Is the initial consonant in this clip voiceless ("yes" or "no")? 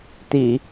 yes